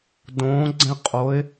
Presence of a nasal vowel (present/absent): present